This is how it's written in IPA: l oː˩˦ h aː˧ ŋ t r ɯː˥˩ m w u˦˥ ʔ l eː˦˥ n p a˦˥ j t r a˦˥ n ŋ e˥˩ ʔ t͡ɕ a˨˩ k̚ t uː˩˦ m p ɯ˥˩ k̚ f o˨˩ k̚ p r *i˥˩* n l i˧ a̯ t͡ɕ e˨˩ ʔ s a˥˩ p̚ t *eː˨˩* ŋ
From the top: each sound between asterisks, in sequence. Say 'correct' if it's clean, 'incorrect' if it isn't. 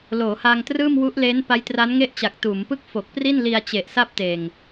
correct, correct

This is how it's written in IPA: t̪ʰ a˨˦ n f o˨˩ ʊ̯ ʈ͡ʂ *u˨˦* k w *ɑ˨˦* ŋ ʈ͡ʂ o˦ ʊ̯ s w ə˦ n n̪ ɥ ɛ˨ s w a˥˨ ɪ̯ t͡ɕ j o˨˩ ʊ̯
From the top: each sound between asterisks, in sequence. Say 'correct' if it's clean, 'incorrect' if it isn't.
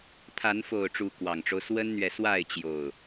correct, incorrect: ɑ˨˩

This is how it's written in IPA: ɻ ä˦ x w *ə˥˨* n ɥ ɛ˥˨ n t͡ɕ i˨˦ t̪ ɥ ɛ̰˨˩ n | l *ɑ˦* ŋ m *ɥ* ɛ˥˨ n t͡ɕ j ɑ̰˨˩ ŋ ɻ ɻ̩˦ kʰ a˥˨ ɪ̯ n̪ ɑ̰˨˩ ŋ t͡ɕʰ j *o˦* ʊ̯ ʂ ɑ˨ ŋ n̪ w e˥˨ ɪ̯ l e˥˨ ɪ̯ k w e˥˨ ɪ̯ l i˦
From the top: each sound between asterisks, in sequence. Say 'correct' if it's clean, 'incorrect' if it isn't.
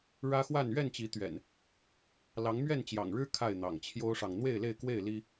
incorrect: a˥˨, incorrect: ɑ˨˦, correct, correct

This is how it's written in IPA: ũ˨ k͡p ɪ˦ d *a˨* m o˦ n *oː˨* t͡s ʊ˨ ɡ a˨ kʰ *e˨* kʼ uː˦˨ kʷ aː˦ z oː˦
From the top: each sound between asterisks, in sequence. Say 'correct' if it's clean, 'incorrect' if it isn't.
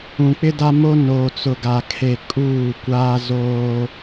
incorrect: a˦, correct, correct

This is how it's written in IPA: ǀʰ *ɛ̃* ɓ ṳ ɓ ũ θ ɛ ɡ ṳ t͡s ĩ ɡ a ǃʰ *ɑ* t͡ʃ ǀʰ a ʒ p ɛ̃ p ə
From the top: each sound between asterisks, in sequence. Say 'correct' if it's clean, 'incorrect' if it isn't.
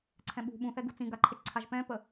correct, incorrect: ə

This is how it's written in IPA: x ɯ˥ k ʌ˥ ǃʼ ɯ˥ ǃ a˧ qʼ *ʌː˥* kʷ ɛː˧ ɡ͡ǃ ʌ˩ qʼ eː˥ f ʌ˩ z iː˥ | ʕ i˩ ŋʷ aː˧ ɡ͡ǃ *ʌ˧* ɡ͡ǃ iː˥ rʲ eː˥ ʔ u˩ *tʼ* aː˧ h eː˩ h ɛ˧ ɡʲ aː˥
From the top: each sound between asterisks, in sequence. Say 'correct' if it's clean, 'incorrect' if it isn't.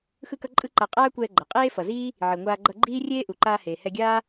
incorrect: aː˥, correct, incorrect: ǃ

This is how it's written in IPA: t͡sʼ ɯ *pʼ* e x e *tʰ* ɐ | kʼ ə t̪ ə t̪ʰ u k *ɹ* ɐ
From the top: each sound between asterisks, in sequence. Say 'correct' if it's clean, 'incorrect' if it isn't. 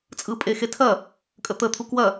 correct, correct, incorrect: w

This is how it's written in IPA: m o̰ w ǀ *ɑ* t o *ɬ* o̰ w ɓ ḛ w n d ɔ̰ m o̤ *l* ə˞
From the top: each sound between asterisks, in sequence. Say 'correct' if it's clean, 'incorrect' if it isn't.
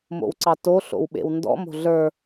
correct, correct, incorrect: ɮ

